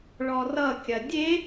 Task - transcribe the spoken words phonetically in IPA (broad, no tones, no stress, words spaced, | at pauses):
ɭɔrʌkʲɐ dʲe